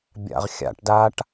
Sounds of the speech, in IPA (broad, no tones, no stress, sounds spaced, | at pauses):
bʲ a̰ ʁ xʲ a̰ ʈ d a ʈ